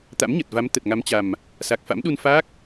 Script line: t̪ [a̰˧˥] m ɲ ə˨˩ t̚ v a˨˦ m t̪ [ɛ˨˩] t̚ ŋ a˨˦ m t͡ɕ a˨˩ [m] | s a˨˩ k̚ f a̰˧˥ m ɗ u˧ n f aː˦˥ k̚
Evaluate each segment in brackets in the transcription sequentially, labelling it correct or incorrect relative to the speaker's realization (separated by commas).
correct, incorrect, correct